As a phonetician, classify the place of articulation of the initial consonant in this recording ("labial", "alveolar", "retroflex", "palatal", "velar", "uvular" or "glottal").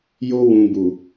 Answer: palatal